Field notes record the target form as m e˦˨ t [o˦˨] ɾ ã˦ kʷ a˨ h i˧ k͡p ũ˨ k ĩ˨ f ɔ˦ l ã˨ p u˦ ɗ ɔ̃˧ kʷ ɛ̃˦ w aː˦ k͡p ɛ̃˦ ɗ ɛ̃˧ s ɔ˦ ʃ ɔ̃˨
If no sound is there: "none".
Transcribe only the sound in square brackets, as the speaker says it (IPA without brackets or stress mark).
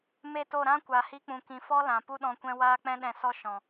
o˦˨